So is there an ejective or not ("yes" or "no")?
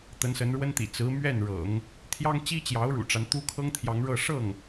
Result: no